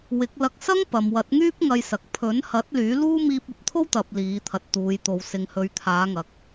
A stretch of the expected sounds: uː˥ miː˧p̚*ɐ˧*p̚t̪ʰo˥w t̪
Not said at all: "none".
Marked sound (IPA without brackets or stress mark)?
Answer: ɐ˨